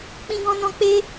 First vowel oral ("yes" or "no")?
no